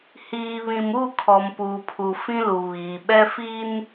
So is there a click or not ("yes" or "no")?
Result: no